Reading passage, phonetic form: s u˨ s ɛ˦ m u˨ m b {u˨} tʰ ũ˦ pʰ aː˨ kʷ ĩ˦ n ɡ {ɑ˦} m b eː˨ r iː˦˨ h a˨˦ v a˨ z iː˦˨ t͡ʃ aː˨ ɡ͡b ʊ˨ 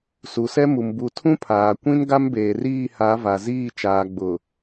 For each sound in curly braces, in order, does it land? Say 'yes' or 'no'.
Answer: yes, no

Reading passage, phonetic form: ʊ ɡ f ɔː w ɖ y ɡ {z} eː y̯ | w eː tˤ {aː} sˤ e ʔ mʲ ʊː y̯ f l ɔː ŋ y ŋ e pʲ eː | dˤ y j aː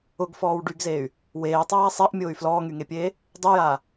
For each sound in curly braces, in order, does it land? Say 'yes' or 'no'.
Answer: yes, yes

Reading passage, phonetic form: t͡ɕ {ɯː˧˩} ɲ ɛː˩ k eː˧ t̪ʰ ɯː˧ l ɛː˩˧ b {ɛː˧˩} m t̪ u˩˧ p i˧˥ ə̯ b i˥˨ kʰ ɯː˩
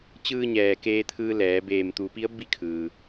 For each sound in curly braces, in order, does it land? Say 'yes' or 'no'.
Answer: no, no

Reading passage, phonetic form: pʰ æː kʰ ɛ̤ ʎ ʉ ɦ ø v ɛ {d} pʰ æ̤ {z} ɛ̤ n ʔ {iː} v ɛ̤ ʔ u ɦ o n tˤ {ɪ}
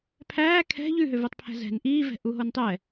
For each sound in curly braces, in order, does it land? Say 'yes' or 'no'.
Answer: no, yes, yes, no

